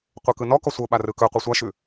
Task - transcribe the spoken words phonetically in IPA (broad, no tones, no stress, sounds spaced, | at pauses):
qʷ e k ɯ n ɔ k ɔ sʷ ɤ ɓ a r ɯ k ɵ qʷ ɯ sʷ a ʃ ʉ